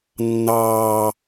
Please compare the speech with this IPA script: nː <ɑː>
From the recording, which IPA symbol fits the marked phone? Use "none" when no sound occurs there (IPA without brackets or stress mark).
ɑː